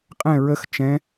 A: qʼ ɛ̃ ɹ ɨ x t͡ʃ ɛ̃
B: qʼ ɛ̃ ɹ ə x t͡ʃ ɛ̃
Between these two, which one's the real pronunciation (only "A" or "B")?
B